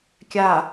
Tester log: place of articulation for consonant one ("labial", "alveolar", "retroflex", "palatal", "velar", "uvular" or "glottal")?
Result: velar